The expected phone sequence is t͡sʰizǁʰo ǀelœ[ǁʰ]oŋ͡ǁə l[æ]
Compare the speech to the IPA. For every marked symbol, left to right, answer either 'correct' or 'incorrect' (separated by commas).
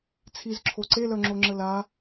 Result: incorrect, incorrect